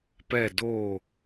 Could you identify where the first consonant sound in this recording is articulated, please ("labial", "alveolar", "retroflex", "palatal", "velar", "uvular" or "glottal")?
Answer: labial